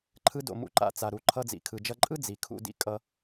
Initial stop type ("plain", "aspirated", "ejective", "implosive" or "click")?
click